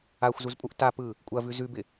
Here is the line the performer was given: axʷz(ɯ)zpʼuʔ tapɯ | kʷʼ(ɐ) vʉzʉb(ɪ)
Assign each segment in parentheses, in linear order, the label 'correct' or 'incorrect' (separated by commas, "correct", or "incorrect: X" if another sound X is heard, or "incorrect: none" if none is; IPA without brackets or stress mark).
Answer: incorrect: u, correct, correct